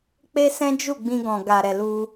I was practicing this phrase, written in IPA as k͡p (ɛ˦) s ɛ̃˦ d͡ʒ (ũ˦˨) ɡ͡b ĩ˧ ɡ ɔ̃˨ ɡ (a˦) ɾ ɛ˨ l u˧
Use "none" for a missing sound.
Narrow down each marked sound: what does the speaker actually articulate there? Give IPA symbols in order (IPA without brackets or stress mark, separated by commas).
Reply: e˦, u˦˨, a˨